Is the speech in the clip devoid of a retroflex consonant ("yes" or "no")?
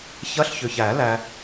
yes